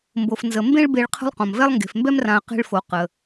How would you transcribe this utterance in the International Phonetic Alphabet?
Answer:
mbo˩fnzə˩ mbẽ˦ɭbe˨ɭ qʰə̤˦lˠqõ˩mvɛ˥lˠ ŋɡe̤˩fmbɛ˥mrã˨ə̯ qe̤˦ɭfo˩ qə˩

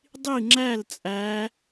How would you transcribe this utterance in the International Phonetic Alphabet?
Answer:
dˤi˥˩ŋ͡ǁæ˥˩lt͡sʼæ˩˧

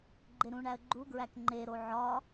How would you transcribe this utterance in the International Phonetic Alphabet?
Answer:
ɡ͡ǃeɾũɳæə̯ ɡ͡ǃuɡɹæk ŋ͡ǃeɾo ʕɒ

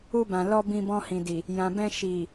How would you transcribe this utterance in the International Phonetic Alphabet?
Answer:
u˧bã˨lɔ˧ bĩ˧bɔ̃˧hĩ˨di˨ | jã˨bɛ̃˧ʃi˨

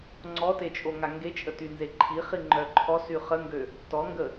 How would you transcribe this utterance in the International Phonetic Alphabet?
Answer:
ŋ͡ǀɔtet͡ʃʼoŋa ŋɡet͡ʃʼətynze ǃʰi χiŋ͡ǃœǃʰɔ syχəŋɡø | tɔŋɡə

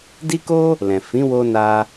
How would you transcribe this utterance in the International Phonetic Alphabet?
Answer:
di˦ko˦ | lɛ̃˨ fĩ˨˦wo˧ na˧

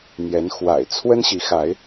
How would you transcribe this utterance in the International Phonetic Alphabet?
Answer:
n̪jɛ˨˦nxwa̰˨˩ɪ̯ t͡sʰwə˦nɕi˨˦xa˨˦ɪ̯

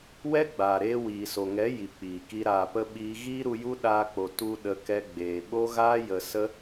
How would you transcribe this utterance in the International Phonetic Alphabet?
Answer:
wɛ˦ɡ͡baː˨ɾeː˧ wiː˨so˨ŋɛ˨˦ ji˨k͡piː˨ki˧ ɾaː˨pə˧ ɓiː˧ ɣiː˦ɾu˧ju˦ ɗaː˧k͡po˨ tu˧ ɗə˧kɛ˧ɡ͡beː˨ ɓo˦ɣaː˦jə˧ sə˦

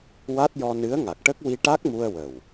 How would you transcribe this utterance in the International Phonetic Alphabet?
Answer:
wa˦˥t̚jɔ˧ nɨ˧˥ə̯ŋa˨˩k̚ʈə˦˥k̚ wi˧ʈa˦˥k̚mu˧ə̯ wə˨˩w

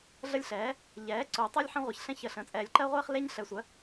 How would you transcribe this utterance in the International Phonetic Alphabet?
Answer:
ɮə˦lʲɬɛː˩˥ | ʎɛː˩˥ ǀo˨˩˦tˤɜ˦lʲ ħɛ̃˦ʁʷɛ˩˥ç ɬɛ̃˦çə˨˩˦ɬə̃ː˩˥ t͡sʼɛː˨lʲǃɜ˦ʁʷeː˦χ le˦ɲɬɛ˨sʷɜ˩˥

